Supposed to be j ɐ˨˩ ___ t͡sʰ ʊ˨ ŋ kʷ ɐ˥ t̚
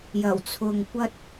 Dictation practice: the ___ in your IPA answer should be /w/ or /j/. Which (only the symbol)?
w